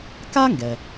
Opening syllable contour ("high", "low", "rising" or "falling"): high